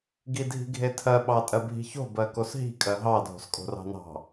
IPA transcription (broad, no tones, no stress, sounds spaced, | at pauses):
ɡ i dʱ i̤ ɡʱ e tʰ ɜ ɓ ɑ tʼ ɜ bʱ i̤ ç o̤ b ɜ k o s ɦ i̤ kʼ ɜ ɦ ɑ dʱ o̤ s kʼ o̤ r ɑ̤ n ɑ̤